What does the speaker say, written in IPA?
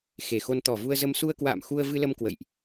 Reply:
x e˨˩ x o˧ n t̪ ɔ˨˩ v u˧ ə̯ z ə˧ m s u˧ ə̯ k w a̰ː˧˨ m x u˧ ə̯ v ɨ˧ l ə˧ m k w ə̰˧˨ j ʔ

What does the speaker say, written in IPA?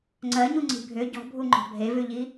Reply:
ŋ͡ǀ ɜ ɲ u ŋ͡ǀ i̤ bʱ ʏ ɟ ɔ̤ bʱ u ŋ͡ǃ ɔ̤ bʱ e v ʉ ʎ i

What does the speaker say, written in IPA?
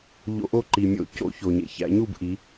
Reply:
ʎ o̰˧˩˧ ʔ o˥˨ ǃ i˩ mʲ o̰˧˩˧ c o̰˧˩˧ ç o˩ ɲ ḛ˩ ç æ̰˩˧ ɲ u˥˨ b ʔ i˩˧

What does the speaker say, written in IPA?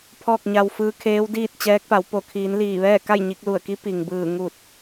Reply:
pʰ ɔː˥˨ k̚ ɲ a˧ w f ɯː˧˥ kʰ eː˧˥ w d iː˥˨ t̚ t͡ɕ ɛː˧˥ k̚ p a˩˧ w p o˧˩ kʰ iː˩˧ n l iː˧˩ ʋ ɛː˥˨ k a˥˨ j ɲ i˧ k̚ l u˧˩ ə̯ k i˧˥ p i˩ ŋ b ɯː˧˩ ŋ u˧˩ t̚

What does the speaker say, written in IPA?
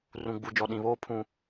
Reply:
r ũ˨ ɡ͡b u˨ d͡ʒ ɔ˨ ɗ ĩ˨ β oː˦ pʰ ũ˦

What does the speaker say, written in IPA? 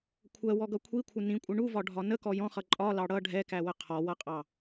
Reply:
kʷʰ ɜ w ɔ ɡ ʌ kʷʰ i kʷʰ ɪ n ĩ kʷʼ ɪ ɳ u v ɒ ɖʱ ɒ n ə k ɔ j ɔ̃ χ ʌ ǃʼ ɒ l ɑ ɽ ʌ ɖʱ ɛ k æ w ə qʰ ɔ w ʌ qʼ ɑ

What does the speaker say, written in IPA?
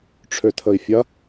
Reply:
ʈ͡ʂʰ ø tʰ ə i̯ fʲ ɐ

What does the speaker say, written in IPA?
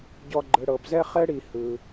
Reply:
ɟ ɔ˨ ɡ͡ǃ ɯ˩ ɽ ɤ˩ b z ɛ˥ χ ɛ˥ ɽ i˨ h ɯ˩

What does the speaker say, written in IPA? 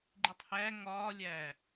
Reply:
ɡ͡ǃ i tˤ h æ ŋ ɒː lʲ æː

